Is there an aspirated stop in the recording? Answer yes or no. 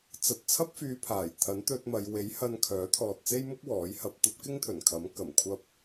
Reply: yes